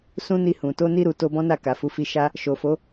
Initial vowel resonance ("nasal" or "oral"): nasal